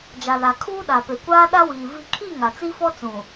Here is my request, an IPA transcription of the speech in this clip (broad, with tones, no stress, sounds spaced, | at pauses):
d͡ʒ a˨ l a˨ kʰ uː˦ ɗ a˨ p e˨ kʷ aː˦ ɗ a˦ w iː˨ v i˨ kʰ i˦˨ ŋ a˨ t͡s i˦ f ɔ˦ t͡s ũ˨